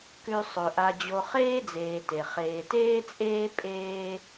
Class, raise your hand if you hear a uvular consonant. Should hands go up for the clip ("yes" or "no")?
yes